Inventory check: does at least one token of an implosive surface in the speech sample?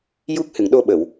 yes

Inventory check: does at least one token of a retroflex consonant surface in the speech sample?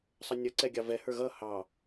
no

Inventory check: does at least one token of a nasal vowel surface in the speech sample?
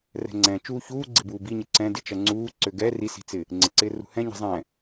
yes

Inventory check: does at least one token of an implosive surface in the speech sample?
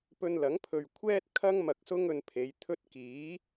no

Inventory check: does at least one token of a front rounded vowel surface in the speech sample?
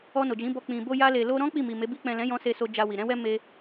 no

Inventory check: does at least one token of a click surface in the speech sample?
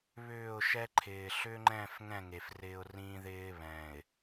yes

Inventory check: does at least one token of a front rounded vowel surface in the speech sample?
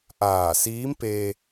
no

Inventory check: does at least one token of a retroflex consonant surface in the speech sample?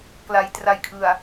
no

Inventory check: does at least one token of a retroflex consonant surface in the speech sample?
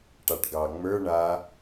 yes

